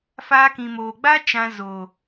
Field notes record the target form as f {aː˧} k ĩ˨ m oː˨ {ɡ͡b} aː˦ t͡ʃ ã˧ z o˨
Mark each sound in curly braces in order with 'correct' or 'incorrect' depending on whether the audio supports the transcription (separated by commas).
correct, correct